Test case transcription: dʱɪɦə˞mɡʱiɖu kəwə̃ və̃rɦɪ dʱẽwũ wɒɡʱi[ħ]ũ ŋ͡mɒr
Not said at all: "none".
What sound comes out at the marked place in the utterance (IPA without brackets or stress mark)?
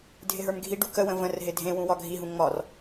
ɦ